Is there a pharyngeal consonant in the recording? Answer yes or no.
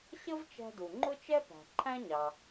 no